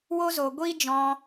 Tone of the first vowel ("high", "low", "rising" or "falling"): high